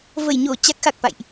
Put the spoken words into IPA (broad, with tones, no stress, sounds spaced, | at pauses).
v ə˧˩ j ɲ o˧˩ t͡ɕ a˦˥ k̚ x a˨˩ k̚ f a̰˧˨ j ʔ